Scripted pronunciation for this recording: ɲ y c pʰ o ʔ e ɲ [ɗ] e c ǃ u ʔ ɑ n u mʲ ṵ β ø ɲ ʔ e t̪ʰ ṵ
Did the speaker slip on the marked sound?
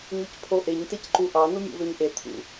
yes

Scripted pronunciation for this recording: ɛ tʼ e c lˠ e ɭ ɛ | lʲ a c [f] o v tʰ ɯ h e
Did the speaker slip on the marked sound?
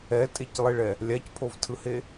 yes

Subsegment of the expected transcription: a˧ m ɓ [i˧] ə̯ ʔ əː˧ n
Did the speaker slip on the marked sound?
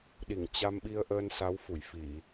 no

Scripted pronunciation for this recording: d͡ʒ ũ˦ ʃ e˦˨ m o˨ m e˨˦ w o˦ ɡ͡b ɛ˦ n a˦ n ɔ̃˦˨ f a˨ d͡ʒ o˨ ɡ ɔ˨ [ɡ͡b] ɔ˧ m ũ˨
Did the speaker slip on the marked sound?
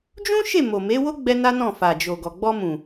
no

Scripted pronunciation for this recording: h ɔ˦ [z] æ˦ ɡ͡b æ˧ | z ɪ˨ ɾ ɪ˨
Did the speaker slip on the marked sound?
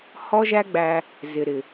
yes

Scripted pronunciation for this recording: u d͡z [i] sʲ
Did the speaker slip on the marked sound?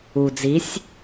no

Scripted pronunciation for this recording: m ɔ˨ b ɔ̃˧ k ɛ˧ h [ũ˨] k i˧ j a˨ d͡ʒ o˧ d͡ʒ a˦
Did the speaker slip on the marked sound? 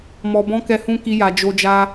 yes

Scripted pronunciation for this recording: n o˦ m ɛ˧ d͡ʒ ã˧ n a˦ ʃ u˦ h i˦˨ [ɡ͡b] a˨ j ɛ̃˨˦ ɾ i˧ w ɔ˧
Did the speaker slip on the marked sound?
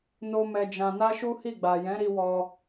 no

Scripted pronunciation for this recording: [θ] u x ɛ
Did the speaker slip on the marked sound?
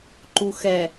yes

